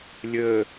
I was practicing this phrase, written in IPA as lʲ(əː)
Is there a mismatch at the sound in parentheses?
no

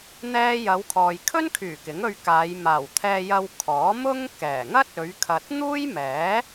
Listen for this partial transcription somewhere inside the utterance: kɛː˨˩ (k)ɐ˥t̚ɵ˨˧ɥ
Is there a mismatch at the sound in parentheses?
yes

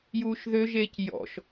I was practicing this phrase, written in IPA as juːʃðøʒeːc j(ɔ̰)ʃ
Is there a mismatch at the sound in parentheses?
no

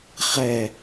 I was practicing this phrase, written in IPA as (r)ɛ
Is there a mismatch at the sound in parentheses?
yes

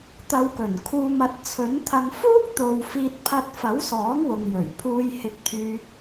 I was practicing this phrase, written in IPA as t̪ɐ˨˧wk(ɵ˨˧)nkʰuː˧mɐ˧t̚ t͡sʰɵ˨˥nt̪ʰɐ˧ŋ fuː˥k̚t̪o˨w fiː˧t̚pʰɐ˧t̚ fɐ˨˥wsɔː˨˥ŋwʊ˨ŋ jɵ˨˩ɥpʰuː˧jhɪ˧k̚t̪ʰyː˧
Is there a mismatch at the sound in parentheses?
yes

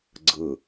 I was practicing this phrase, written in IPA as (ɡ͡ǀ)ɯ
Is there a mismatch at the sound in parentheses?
no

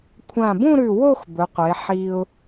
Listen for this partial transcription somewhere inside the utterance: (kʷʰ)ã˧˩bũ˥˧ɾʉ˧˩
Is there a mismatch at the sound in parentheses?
no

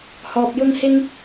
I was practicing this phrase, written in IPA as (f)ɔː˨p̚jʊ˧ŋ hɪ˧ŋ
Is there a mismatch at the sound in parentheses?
yes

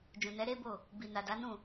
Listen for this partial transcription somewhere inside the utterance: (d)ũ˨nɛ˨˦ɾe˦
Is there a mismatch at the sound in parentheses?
yes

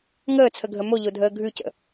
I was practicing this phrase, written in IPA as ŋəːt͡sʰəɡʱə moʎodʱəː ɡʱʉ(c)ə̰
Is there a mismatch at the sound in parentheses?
no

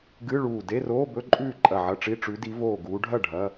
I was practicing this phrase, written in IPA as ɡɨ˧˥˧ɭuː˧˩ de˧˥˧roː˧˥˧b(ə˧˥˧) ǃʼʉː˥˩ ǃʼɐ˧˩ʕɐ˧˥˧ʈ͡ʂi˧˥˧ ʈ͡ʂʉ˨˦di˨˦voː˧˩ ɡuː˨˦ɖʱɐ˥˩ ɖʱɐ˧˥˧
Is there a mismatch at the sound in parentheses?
yes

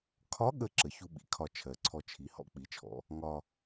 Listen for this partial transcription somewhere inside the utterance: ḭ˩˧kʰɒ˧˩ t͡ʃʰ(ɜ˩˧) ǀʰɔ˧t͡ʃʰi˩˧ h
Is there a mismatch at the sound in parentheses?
no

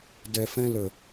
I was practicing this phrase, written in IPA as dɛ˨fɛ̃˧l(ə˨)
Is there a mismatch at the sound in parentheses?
no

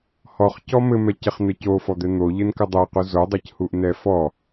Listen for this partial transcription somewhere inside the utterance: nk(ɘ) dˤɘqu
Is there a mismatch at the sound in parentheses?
no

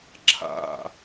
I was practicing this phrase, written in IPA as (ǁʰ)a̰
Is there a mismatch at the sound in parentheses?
no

